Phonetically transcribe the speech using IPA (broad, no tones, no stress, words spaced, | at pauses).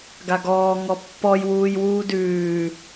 ɡaɡɔː ŋɔpːɔj wuːjwuːdʉː